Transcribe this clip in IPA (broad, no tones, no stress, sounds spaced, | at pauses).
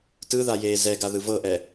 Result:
t ɯ ð a j eː z ɛ ɡ a ð ɯ v ɤ ʔ ɛ